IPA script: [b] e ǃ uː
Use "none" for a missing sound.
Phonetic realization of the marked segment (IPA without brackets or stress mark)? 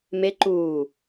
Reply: m